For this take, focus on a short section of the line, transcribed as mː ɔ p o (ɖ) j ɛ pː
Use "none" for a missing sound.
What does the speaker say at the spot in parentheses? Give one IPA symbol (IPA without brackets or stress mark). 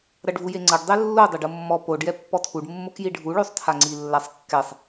ɖ